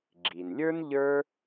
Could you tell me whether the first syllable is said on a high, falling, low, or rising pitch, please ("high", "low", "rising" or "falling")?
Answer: low